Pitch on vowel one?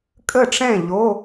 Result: falling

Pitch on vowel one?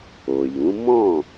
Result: low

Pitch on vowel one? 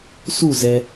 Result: falling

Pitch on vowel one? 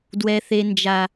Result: high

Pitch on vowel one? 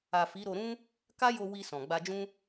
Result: low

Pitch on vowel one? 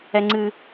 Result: high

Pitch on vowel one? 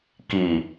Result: low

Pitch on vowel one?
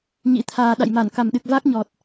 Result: rising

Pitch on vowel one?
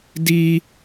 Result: high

